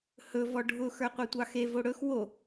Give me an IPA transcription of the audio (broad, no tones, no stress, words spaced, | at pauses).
hɵ vɔɖʱʊ xə˞qʷetʷɑxe voɽɵx wo